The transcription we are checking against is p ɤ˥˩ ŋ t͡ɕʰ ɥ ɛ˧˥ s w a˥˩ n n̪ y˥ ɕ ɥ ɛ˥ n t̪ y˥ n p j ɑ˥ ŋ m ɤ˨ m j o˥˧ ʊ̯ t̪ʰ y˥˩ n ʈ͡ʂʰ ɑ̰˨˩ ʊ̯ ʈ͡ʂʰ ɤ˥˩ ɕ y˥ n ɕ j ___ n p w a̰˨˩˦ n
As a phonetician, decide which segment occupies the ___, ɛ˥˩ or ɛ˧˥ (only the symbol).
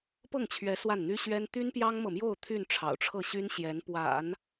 ɛ˧˥